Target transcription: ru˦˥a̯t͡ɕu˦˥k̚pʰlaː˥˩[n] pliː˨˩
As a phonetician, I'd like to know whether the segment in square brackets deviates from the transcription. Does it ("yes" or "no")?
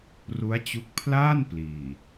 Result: no